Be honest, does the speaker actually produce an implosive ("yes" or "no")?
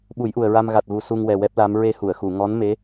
yes